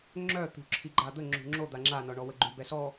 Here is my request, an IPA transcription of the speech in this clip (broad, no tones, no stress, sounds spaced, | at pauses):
ŋ͡ǁ œ t̪ ṳ ǁʰ i ɡ͡ǃ a d̪ ə ŋ͡ǁ ṳ ŋ͡ǁ o d̪ a ŋ͡ǁ a n ɔ ɳ ɔ w ə ɡ͡ǃ y b ɛ s ɔ